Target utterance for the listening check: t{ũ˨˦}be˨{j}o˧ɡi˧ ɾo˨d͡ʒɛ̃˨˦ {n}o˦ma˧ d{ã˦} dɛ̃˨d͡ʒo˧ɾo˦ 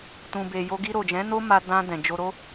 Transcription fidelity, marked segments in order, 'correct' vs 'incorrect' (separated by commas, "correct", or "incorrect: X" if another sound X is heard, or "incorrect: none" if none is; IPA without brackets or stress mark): incorrect: ũ˨, correct, correct, incorrect: ã˧